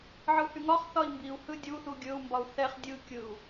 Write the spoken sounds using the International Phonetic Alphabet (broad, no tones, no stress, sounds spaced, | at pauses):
ʕ ɯ h y ŋ ɒ χ θ ɒ i̯ m b i u̯ h ɯ dʲ u θ u ɡʲ ɵ u̯ m b ɒ u̯ θ ɛ χ dʲ ɯ kʲ ɯ u̯